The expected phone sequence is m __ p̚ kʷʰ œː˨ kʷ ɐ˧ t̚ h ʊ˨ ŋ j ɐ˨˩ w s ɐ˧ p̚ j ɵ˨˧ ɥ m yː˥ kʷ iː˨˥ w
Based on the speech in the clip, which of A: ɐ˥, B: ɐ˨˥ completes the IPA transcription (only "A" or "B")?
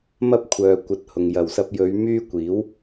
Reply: A